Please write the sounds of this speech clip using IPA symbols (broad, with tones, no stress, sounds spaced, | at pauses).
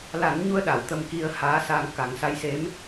l a˨˩˦ n ɲ u˧ ə̯ ɗ a˨˩˨ w t̪ ə˧ m k i˧ ə̯ h aː˧˥ s a˧ ŋ k a˨˩˦ ŋ s a˧˥ j s e˧˥ m